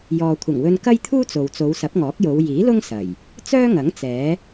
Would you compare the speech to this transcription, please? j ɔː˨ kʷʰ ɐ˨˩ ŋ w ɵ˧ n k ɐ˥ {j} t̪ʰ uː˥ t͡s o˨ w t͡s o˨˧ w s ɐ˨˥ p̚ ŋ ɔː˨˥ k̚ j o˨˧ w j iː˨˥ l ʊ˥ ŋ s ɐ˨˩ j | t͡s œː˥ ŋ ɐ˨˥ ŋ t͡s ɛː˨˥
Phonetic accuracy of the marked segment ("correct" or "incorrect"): correct